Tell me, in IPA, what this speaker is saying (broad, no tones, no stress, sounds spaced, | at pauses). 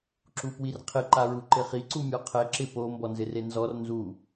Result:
ǁ u p w i r qʰ ɪ ǃ a ɹ u ǃ ɪ χ i ǀ u mʲ ɔ qʰ ɛ ǁ ɪ p o m b ɔ n z ɪ r e n z ɔ r n z u